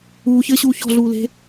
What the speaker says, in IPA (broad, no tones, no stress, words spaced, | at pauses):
uːçɘːɕuː çɔ̤ɮuːle̤